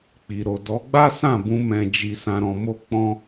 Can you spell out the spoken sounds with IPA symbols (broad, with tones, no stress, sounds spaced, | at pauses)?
k͡p i˨ ɾ o˨ d ɔ˨˦ ɡ͡b a˦ s ã˦˨ b ũ˧ m ɛ̃˧ d͡ʒ i˧ s ã˧ ɾ ɔ̃˧ m o˦ k͡p ɔ̃˦